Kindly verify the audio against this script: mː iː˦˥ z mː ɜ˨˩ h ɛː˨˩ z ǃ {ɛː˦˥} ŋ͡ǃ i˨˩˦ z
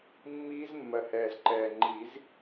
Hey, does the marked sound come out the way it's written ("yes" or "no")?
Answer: no